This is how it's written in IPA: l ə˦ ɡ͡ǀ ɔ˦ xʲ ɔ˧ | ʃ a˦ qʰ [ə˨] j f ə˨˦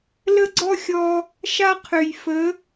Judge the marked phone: incorrect: ø˨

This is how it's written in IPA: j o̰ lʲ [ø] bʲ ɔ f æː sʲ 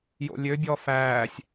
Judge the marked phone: correct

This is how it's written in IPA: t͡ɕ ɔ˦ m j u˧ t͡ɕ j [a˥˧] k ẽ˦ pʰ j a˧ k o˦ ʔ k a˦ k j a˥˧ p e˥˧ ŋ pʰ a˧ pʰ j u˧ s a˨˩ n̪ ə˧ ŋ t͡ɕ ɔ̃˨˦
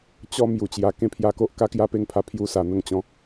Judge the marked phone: incorrect: a˧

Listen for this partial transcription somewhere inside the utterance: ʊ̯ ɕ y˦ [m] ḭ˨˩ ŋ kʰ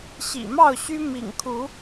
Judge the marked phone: correct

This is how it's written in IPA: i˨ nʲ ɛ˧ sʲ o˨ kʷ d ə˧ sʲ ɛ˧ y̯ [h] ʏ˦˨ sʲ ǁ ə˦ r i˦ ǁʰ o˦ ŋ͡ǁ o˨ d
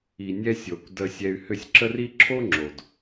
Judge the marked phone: correct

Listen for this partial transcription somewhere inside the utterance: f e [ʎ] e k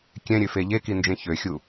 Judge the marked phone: correct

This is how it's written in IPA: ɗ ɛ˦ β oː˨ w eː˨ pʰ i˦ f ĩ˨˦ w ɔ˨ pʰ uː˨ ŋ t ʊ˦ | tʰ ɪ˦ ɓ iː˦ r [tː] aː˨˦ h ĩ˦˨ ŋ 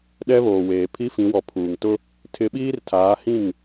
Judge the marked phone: incorrect: tʰ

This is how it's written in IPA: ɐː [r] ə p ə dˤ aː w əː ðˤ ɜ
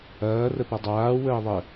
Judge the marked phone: correct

